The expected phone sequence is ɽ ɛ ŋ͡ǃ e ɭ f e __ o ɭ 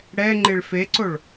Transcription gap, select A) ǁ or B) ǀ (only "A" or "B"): B